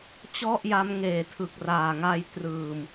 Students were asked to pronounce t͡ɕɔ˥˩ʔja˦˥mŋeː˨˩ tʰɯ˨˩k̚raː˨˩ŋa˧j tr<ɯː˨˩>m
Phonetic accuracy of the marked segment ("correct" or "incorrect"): correct